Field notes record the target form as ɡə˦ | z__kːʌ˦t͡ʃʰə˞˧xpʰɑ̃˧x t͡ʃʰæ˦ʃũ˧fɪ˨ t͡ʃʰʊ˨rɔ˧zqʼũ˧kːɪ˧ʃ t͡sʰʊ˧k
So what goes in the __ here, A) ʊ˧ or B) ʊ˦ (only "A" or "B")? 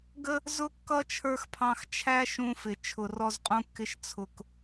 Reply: B